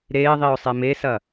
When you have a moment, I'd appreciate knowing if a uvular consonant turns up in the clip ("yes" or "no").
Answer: no